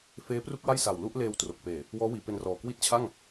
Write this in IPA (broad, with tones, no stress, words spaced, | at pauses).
feː˦˥pru˥˩k̚wa˥˩j sa˨˩wlu˥˩ʔleː˧wtro˨˩k̚ peː˨˩ | wɔː˦˥wiː˩˦pe˧nrɔː˨˩ kwi˦˥t̚t͡ɕʰa˥˩ŋ